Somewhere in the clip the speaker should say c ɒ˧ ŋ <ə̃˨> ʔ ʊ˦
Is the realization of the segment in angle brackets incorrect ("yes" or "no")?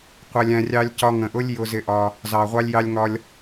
no